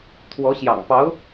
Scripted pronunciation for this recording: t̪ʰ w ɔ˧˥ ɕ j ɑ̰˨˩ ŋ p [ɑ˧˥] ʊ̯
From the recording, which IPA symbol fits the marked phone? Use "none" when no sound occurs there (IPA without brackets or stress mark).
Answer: ɑ˧˥